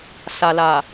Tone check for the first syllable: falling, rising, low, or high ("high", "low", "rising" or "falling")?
low